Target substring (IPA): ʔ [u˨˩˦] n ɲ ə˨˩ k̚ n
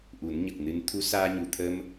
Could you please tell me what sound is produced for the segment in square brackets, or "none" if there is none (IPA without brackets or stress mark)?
u˨˩˦